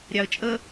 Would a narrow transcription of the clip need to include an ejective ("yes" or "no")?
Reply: yes